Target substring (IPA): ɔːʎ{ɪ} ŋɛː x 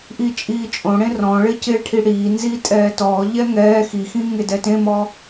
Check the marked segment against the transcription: incorrect: ɛ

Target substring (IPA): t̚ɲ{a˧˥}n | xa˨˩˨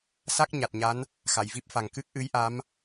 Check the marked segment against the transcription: correct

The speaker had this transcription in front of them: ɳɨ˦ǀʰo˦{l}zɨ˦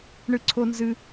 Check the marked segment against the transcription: incorrect: n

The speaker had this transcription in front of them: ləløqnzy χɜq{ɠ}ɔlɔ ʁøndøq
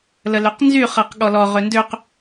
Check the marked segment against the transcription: correct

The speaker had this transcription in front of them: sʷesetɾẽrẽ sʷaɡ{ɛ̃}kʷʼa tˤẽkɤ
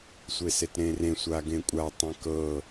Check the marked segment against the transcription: incorrect: ẽ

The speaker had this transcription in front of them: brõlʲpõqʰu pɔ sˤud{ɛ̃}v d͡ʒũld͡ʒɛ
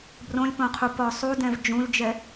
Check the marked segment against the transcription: correct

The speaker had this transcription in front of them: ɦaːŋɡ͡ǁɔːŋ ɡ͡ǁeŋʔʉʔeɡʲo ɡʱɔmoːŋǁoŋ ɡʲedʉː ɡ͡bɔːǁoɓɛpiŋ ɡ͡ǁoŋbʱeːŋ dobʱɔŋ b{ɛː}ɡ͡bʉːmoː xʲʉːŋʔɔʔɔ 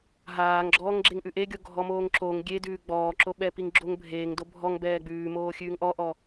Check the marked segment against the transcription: correct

